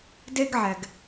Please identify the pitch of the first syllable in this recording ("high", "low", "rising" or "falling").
high